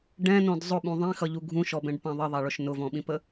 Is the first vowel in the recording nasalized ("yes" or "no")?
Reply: yes